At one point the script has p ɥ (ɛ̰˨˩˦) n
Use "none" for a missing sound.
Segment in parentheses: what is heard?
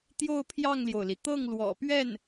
ɛ˥˩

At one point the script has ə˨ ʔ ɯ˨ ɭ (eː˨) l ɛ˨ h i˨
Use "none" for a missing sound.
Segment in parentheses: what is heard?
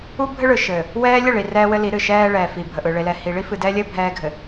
e˨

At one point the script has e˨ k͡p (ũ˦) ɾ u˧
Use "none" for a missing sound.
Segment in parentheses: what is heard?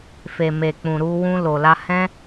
ũ˨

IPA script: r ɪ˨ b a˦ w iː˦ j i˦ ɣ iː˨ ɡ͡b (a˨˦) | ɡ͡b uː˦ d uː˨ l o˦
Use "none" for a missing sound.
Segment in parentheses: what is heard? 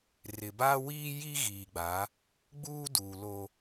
a˨˦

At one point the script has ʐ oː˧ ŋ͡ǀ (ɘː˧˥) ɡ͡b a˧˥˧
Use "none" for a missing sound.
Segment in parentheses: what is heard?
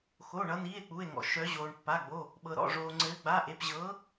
ɘː˧˥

